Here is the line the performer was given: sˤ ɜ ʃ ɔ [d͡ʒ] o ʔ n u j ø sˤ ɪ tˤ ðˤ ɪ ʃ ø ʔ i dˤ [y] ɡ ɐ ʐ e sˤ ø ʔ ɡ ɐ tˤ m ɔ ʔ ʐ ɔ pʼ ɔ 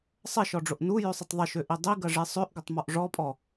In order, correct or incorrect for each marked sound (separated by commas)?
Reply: incorrect, incorrect